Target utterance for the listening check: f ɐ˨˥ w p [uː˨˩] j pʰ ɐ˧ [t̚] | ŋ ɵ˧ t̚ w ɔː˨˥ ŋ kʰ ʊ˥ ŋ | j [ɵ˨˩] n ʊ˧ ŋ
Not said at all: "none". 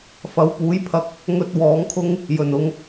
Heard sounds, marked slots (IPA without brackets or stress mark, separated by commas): uː˨˥, k̚, ɵ˨˩